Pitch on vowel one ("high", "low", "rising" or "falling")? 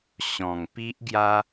low